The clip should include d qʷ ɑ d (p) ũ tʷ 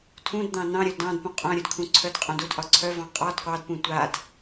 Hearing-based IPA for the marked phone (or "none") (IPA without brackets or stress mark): p